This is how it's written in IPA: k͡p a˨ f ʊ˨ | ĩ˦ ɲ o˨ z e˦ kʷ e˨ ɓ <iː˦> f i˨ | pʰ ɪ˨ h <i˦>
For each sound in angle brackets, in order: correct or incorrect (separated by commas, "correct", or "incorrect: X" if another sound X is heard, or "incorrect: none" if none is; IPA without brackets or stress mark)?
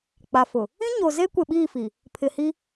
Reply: incorrect: iː˦˨, correct